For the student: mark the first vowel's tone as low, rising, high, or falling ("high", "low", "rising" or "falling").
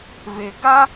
low